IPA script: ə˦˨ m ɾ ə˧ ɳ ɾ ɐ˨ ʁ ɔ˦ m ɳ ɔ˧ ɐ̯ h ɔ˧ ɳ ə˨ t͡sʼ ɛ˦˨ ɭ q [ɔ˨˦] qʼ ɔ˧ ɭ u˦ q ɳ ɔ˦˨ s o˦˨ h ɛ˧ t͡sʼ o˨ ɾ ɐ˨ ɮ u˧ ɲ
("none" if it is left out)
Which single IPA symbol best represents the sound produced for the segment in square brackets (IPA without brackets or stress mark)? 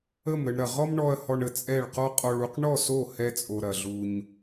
ɔ˦